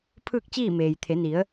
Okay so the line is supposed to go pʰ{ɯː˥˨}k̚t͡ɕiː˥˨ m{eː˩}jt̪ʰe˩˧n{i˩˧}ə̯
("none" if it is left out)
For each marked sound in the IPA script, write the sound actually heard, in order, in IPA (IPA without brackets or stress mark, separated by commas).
ɯː˥˨, eː˩, i˩˧